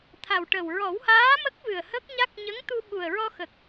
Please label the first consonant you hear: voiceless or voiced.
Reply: voiceless